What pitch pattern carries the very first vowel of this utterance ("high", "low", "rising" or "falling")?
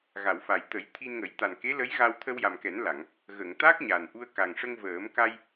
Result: low